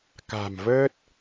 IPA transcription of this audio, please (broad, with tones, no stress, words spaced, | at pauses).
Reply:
ka̤˨˩mvəː˦˥t̚